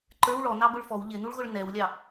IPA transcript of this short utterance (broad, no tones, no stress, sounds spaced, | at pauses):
ǃ ə˞ w ɭ ɔ n ɑ b ʊ ɭ f ɔ w ʎ ɪ n̪ u ɭ ɣ ʊ ɭ n ɛ w lʲ ɑ